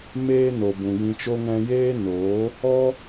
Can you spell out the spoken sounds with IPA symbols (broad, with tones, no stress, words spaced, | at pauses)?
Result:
meː˦no˨ bũ˨jĩ˧t͡ʃo˦ ŋɛ̃˧jeː˦noː˨˦ | ɔ˦